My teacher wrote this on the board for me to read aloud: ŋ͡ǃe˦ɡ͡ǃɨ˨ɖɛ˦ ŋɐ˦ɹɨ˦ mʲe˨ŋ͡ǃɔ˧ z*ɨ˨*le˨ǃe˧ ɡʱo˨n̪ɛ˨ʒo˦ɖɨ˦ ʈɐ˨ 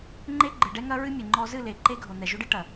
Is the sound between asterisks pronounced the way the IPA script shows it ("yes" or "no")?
no